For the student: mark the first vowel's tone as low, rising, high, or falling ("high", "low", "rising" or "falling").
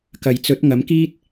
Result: low